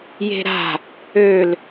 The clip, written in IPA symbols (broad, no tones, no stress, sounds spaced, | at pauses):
j e̤ ɾ a̤ | ø l